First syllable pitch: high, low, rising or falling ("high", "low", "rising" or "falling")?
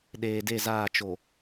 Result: low